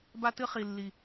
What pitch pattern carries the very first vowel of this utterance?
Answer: high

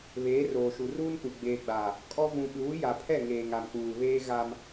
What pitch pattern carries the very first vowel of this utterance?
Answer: rising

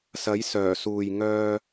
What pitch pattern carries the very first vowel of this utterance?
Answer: rising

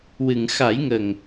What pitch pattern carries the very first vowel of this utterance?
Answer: low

